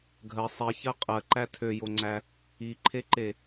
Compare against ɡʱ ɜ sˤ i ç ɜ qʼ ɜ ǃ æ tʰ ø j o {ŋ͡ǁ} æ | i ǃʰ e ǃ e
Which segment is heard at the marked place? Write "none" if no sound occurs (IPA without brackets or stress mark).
ŋ͡ǀ